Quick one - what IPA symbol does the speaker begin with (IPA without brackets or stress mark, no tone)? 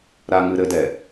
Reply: ɾ